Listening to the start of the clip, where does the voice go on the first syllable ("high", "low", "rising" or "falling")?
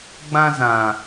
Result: high